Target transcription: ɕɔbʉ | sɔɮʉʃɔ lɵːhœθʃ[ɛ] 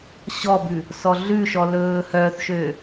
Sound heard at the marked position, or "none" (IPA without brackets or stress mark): ø